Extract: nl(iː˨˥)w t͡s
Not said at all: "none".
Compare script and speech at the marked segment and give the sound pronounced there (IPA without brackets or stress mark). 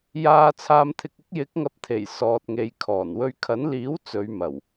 iː˨˥